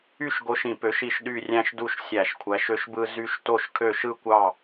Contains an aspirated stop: yes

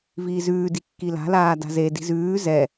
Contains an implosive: no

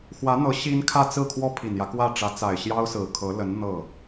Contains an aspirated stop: yes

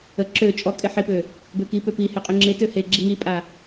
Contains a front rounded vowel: yes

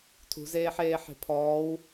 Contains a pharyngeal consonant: yes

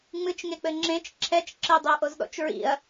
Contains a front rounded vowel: no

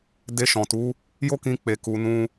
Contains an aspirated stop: no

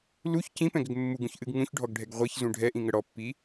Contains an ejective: no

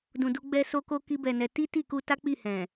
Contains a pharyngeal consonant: no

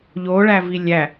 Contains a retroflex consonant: yes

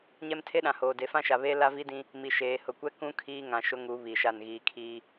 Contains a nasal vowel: yes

